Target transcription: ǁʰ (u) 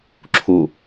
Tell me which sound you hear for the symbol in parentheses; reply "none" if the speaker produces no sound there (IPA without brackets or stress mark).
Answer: u